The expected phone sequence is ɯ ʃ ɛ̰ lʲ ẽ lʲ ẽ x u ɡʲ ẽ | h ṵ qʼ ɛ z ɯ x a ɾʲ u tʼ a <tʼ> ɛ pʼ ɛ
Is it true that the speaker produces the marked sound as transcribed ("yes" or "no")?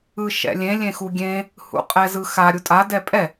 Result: no